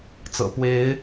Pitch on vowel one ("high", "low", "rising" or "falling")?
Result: low